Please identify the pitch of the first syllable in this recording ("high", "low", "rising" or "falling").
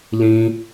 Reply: high